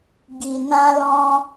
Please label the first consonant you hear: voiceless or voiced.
voiced